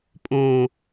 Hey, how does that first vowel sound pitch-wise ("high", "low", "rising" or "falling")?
low